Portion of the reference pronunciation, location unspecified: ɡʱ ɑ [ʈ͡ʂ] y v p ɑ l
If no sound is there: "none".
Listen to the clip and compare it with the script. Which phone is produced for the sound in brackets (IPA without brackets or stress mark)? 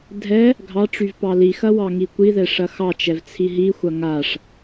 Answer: ʈ͡ʂ